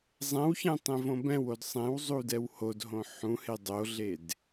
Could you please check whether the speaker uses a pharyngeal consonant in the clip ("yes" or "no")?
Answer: yes